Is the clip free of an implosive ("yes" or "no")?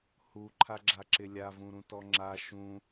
yes